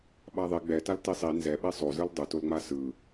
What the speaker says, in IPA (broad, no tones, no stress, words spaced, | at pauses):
ɓaðˤe ɡ͡bɛtal tisˤi nzɛɓe sˤo zɯldˤɯtolŋ͡ma sɯ